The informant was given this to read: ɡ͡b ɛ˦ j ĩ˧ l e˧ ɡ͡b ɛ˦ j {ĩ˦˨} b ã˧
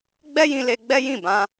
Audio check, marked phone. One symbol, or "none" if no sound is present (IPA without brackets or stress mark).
ĩ˦˨